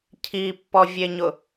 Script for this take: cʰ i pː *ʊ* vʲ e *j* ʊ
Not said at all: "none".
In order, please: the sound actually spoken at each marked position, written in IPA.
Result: ɔ, ɲ

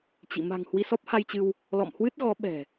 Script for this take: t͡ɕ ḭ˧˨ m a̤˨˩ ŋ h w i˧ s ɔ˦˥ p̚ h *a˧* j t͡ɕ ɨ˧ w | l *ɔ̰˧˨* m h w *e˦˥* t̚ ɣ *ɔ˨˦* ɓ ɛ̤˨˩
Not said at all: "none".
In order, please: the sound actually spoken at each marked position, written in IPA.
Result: a˧, ɔ̰˧˨, ɨ˦˥, ɔ˨˦

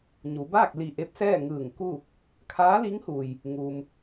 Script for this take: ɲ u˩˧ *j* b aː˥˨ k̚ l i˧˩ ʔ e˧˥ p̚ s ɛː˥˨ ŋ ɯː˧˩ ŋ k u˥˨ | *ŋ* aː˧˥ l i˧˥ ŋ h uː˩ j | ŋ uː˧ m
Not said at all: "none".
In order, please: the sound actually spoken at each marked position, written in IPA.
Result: none, kʰ

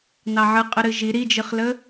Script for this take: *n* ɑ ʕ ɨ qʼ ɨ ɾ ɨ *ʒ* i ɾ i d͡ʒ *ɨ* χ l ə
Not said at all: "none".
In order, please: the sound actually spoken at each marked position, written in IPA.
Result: n, ʒ, ɨ

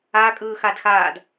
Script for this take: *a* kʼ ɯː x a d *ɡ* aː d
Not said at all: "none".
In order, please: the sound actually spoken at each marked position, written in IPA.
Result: a, x

